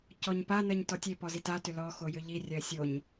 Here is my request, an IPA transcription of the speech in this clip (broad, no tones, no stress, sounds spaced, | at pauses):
c ɔ ɲ p a n ɜ ɲ t ɔ tʲ e p ɔ z i t a t ʏ l ɔ x o j ʏ ʎ i rʲ ɜ sʲ o ɲ